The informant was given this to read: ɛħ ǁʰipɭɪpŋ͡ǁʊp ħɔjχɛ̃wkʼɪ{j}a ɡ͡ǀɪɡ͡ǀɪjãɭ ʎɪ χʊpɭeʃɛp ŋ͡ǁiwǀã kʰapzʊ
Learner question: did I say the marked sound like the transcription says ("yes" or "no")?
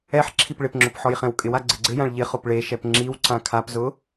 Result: no